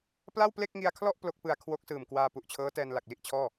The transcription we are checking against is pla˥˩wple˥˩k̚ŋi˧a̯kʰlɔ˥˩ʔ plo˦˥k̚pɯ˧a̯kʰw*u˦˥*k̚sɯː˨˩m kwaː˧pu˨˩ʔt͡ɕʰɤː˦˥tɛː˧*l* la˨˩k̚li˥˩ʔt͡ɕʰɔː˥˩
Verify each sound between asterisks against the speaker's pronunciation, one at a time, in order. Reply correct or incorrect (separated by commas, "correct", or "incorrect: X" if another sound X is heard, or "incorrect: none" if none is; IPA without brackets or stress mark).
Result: incorrect: o˦˥, incorrect: n